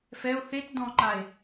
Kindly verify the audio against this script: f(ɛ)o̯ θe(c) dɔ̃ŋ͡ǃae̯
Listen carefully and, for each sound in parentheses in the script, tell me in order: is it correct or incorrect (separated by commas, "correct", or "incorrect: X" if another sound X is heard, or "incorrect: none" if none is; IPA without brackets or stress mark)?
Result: correct, incorrect: t